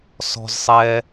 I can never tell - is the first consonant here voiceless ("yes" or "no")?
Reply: yes